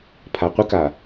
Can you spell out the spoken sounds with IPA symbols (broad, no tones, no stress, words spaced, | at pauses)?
pʰaqʷəka